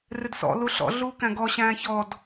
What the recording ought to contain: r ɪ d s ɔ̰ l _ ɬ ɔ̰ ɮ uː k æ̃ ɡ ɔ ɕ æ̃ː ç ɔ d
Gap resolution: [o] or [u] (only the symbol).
u